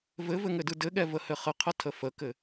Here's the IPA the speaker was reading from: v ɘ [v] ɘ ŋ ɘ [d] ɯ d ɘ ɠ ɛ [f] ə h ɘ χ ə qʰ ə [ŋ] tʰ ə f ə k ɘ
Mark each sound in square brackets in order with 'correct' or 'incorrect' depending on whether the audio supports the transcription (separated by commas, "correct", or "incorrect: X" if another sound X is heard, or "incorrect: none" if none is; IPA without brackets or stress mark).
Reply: correct, correct, incorrect: v, incorrect: none